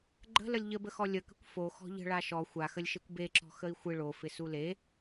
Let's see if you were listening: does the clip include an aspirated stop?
no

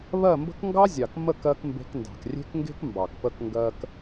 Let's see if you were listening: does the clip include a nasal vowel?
no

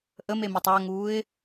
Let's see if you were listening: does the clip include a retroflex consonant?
no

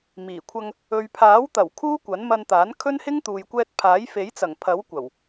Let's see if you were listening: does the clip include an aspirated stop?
yes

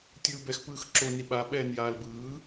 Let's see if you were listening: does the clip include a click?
yes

